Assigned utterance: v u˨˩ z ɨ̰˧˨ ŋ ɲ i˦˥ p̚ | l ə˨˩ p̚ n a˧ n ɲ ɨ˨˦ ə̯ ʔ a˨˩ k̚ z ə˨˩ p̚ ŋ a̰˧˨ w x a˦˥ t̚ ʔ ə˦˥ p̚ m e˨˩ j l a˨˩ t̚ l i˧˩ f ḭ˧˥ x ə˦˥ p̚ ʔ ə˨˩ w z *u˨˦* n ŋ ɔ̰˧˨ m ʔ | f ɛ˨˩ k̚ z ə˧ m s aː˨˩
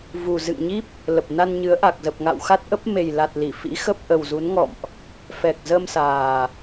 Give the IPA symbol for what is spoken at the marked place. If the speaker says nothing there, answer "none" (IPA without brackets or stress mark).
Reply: u˨˦